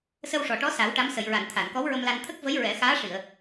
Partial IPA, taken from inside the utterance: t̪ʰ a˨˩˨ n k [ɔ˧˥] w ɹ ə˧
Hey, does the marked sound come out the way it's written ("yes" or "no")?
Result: yes